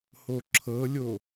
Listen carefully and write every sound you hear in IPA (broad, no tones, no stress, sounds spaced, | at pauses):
h o ǁʰ ɤ lʲ o